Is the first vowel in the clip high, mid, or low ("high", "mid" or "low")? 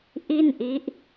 high